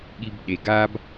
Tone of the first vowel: high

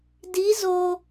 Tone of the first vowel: rising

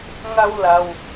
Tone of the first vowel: high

